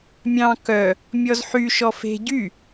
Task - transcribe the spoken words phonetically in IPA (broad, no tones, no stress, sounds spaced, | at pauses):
mʲ ɑ̃ k œ | mʲ ɔ z ħ y ʃ ɔ f e̤ ɟ y